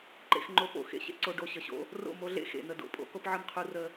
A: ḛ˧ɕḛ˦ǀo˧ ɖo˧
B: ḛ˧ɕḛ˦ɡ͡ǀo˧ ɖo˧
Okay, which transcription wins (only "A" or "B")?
A